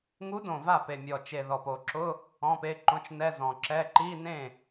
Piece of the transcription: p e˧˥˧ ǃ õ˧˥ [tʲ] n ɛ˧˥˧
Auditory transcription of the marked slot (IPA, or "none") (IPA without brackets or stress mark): t͡ʃ